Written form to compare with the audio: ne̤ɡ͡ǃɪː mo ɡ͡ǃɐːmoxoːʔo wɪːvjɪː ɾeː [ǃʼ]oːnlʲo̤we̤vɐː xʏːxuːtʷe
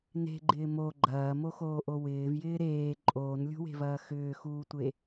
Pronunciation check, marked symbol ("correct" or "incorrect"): correct